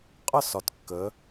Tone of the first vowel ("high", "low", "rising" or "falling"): falling